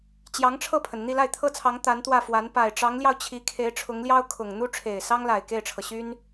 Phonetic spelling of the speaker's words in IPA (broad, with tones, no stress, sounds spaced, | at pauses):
t͡ɕ j ɑ˧˥ ŋ ʈ͡ʂʰ ɤ˥˩ pʰ ə˩ n n̪ i˥˧ l a˥˩ ɪ̯ t̪ʰ ɤ˥ t͡sʰ ɑ˧˥ ŋ t̪ a˧˥ n t̪ w ä˥˩ f w a˧˥ n p a˨˩ ɪ̯ ʈ͡ʂ ɑ˧˥ ŋ l j ɑ˧ ʊ̯ t͡ɕʰ i˧˥ kʰ e˧˥ ɪ̯ ʈ͡ʂʰ ʊ˧˥ ŋ l j ɑ˥ ʊ̯ kʰ ʊ˨˩ ŋ n̪ u˥ ʈ͡ʂʰ e˨˩ ɪ̯ s ɑ˥ ŋ l a˨˩ ɪ̯ k e˥˩ ɪ̯ ʈ͡ʂʰ ɤ˩ ɕ y˥ n